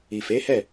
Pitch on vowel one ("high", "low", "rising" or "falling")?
low